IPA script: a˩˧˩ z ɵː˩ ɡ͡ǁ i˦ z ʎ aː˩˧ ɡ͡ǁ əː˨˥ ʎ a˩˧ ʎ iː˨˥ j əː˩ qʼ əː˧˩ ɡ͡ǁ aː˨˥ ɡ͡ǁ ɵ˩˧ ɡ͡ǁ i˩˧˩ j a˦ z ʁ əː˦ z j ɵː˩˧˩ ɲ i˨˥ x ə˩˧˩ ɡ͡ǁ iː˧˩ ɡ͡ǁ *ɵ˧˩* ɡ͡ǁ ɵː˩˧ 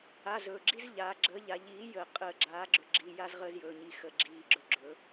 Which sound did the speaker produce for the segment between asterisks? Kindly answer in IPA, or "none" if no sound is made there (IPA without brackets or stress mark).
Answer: ɵ˧˩